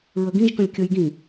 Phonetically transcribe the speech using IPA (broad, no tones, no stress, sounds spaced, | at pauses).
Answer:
ɹ ə ɡ ĩ ʒ k ə̃ lʲ kʲ ə j ɡ ĩ